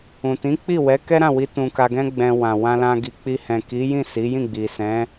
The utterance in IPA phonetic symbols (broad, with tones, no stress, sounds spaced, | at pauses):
ũ˨ t ĩ˨˦ k͡p i˦˨ w ɛ˨˦ k ɛ˦ ɾ ã˦˨ w i˧ t ũ˧ k a˧ ɡ ɛ̃˦ ɡ͡b ɛ̃˧ w ã˨ w ã˧ l ã˧ ɡ i˨ k͡p i˧ h ɛ̃˨ k i˨˦ j ĩ˦˨ s i˨˦ j ĩ˦˨ ɡ͡b i˨ s ɛ̃˨˦